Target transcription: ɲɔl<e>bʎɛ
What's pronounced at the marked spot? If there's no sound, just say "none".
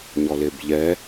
e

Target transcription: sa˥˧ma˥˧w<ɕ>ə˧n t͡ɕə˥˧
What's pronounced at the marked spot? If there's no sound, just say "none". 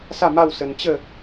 s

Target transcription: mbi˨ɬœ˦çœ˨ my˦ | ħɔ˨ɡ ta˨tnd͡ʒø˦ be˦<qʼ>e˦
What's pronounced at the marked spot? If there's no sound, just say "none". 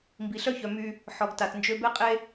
qʼ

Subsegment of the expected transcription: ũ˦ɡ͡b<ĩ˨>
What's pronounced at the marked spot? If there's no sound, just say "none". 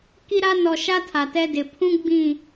ĩ˦˨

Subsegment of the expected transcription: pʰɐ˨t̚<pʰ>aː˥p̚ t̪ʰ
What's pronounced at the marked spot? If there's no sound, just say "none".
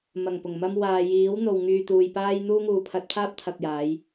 pʰ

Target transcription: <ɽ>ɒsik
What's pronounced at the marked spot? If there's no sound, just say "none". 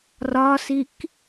r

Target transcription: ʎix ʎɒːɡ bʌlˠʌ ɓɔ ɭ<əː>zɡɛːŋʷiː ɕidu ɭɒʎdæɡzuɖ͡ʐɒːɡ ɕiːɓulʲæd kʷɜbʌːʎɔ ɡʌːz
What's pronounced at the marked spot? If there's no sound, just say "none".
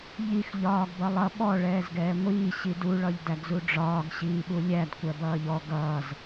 ɛː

